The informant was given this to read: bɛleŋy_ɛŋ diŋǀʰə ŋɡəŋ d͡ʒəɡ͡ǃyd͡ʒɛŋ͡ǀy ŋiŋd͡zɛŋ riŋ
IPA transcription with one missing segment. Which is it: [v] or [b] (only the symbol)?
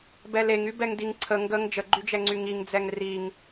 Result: b